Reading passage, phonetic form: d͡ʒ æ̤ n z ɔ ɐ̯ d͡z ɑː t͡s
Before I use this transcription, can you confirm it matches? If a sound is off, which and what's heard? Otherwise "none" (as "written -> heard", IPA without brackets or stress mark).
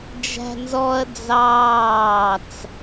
none